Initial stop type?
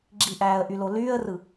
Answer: click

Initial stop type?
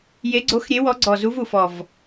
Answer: click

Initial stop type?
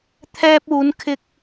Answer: aspirated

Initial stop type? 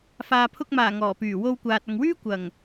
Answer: aspirated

